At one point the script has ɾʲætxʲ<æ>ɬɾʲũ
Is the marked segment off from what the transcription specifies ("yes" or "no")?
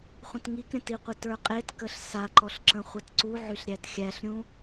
no